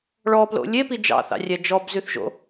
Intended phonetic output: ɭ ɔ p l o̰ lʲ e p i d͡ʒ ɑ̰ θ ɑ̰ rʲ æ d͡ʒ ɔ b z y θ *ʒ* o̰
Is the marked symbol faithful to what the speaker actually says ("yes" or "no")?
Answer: yes